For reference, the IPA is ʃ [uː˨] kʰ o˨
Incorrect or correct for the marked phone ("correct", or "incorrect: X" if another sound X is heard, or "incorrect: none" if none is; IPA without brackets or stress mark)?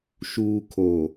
correct